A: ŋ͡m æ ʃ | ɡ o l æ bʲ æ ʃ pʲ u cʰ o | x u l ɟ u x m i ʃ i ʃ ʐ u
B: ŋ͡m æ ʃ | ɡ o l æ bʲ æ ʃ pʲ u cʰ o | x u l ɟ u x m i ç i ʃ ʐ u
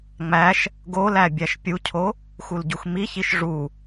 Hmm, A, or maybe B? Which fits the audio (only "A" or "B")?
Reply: B